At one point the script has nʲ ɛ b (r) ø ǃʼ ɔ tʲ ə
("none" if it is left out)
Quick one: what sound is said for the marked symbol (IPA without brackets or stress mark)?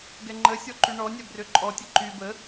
r